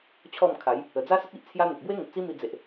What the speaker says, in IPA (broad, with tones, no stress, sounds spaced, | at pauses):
t͡ɕʰ ɔ˥˧ m kʰ a˨˦ j | ə˨˩ d͡z a˦ s ə˦ t̚ i˦ ʔ t͡sʰ j a˦ n̪ ə˨ k̚ b w e˦ ŋ ə˨ p̚ t͡s i˦ m i˧ d͡z e˨ ʔ